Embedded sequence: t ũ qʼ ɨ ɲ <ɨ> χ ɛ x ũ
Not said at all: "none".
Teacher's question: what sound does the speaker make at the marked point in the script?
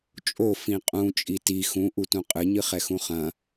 ɨ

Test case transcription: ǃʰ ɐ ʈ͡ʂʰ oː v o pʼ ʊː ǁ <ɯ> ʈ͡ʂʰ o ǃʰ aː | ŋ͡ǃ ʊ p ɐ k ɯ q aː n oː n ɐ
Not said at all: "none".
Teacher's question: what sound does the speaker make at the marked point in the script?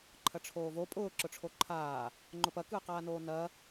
ʊ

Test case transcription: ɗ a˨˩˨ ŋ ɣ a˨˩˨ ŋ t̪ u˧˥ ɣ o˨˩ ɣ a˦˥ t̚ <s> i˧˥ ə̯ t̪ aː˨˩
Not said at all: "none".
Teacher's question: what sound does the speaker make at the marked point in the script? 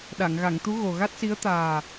s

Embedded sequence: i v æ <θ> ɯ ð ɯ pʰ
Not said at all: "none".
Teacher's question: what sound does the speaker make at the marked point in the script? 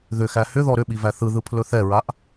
θ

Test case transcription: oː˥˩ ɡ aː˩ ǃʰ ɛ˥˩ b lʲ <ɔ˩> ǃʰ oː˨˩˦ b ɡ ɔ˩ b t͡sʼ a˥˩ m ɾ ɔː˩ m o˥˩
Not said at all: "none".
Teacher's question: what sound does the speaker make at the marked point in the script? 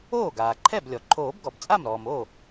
ɔ˩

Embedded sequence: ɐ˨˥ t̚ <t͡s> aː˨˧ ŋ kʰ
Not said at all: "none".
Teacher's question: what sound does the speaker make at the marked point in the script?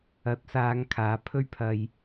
s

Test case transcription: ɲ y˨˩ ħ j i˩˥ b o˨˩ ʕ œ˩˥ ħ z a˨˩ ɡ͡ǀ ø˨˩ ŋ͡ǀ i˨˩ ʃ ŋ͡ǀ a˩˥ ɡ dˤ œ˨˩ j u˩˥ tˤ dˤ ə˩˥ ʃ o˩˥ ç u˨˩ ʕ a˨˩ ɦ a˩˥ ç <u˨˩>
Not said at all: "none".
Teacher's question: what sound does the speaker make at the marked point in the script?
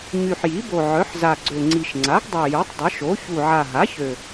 ø˨˩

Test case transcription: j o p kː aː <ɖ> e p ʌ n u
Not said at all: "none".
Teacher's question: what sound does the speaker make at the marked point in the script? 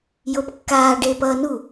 ɖ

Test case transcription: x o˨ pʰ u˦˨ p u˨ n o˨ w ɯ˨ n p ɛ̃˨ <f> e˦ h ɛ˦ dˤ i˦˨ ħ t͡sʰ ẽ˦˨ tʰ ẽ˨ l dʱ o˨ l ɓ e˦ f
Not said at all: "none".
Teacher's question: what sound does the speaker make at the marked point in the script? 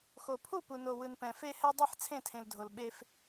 f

